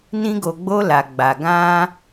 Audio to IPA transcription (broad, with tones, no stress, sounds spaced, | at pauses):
n ĩ˧ ɡ o˨ ɡ͡b o˧ l a˨ ɡ͡b a˨ ɡ ã˧